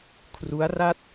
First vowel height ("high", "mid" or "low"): high